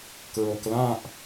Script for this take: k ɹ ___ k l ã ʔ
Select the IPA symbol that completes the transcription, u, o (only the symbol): o